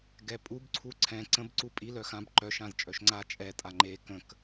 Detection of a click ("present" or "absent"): present